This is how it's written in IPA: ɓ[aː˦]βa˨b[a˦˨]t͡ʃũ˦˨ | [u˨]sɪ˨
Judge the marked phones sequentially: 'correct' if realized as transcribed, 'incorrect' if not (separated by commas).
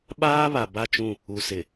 correct, correct, correct